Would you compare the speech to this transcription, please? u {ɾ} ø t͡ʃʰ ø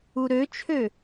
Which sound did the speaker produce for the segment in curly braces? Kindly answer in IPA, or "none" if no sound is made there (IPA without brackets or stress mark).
ɾ